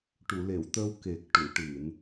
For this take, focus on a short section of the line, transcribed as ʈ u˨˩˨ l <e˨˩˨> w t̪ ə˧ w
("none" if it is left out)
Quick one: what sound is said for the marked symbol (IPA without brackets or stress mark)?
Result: e˨˩˨